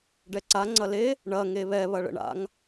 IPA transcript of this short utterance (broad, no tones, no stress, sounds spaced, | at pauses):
ɖ ɛ ǀ a ŋ͡ǀ ɐ l e | ɳ ɐ ŋ e β ɛ β ɐ ɭ ə̰ ɳ a̰ ŋ